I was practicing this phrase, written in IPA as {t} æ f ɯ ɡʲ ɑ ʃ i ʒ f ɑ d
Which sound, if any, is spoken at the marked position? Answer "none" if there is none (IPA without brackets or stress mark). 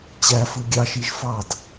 t͡ɕ